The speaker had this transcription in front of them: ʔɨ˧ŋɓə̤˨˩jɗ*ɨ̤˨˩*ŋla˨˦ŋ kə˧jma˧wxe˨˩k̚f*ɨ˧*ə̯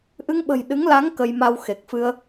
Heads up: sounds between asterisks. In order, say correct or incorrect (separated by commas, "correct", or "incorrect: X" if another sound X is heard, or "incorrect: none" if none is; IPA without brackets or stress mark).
incorrect: ɨ˨˦, correct